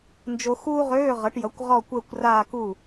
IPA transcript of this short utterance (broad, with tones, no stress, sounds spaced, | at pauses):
n d͡ʒ o˧ x uː˥ ʁ øː˧˥˧ ʁ ʌ˩˥ ʈ j ʌ˩˥ kʷ ʁ ɔ˥˧ kʷ əː˥˧ kʷ r aː˥˧ k u˥˩